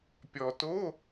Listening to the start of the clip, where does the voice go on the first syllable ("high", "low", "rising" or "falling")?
low